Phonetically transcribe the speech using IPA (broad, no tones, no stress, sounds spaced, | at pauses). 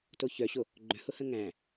t o ç œ ɕ o | ɡ͡ǃ œ̃ h ʊ h ə̃ ŋ æ̃